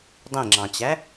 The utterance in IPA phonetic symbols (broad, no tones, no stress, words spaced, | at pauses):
dˤĩŋ͡ǁɑ̃t͡ɕæ